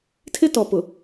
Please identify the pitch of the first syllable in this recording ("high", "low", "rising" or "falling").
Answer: high